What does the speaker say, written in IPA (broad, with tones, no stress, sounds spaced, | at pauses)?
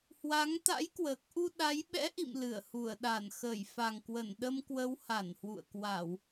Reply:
h w a˨˦ ŋ t̪ a̰˧˥ j k w əː˨˩ k̚ ʔ u˧ ɗ a˨˦ j ɓ ɛ̰˧˥ ʔ ḭ˧˨ m l ɨ˧˩ ə̯ h u˧˩ ə̯ ɗ a˧˩ n x ə˧˩ j f a˨˩ ŋ k w ə˧˩ n ɗ ə˧ m k w ə˨˦ w h a˧˩ n h w ṵ˧˨ ə̯ k w a˧˩˨ w